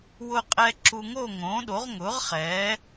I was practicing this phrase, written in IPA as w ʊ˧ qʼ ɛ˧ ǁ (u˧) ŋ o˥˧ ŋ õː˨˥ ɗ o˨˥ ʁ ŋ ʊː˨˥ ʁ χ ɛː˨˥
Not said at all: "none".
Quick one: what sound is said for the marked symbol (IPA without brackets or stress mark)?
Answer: u˧